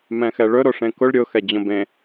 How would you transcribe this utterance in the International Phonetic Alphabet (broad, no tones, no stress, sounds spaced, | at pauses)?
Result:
m ɛ̃ x ɛ ɭ ɵ ɾ o ʂ ẽ k ʊ ɭ ɾʲ ʊ x ɛ d͡ʑ õ b ẽ